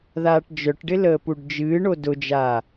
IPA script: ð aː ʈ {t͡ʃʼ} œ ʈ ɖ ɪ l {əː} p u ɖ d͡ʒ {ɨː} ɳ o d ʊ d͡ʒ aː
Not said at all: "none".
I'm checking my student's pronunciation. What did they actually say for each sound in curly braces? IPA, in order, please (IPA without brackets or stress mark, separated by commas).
d͡ʒ, əː, ɨː